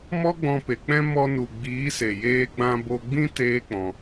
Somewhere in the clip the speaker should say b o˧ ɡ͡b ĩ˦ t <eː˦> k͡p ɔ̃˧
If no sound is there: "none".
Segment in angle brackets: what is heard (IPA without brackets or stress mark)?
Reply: eː˦